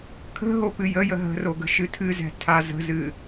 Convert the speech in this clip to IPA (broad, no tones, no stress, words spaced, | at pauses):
kʰə̤ ɦopɨjəjə ɦə̤ro ɡə̤ʃɨtʰɨzɛ̤ tʰazə̤zɨ